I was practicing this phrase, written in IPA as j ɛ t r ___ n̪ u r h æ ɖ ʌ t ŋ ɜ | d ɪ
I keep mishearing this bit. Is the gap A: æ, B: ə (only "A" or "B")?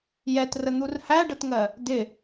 B